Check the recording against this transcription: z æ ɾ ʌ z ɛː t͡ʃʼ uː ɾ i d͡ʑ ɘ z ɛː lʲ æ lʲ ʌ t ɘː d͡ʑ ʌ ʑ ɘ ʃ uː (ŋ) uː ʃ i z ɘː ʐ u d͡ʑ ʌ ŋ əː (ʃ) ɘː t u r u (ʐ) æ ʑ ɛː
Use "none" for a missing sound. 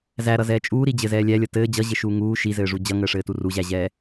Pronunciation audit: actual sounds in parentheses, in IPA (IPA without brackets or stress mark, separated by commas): ŋ, ʂ, ʑ